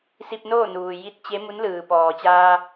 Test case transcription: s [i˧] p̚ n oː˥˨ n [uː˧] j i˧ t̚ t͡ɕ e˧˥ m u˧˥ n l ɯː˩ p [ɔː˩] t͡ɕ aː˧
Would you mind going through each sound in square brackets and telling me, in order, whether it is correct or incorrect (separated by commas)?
correct, incorrect, correct